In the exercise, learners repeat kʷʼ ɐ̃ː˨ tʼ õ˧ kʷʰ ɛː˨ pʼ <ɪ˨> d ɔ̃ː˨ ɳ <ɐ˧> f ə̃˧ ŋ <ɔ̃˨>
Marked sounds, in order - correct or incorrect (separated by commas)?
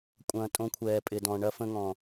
correct, correct, correct